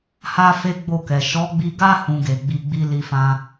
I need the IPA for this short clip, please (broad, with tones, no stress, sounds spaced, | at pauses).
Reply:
h a˦ f e˦ ɡ͡b o˦˨ k ɛ˨ ʃ ɔ˨˦ ɡ͡b i˧ ɡ a˦ h ũ˧ ɡ e˨ ɡ͡b i˧ ɡ͡b i˦ l i˧ f ã˧